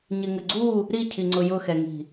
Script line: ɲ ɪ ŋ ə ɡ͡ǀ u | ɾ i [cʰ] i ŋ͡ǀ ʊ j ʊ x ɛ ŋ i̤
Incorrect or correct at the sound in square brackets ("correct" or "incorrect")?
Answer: correct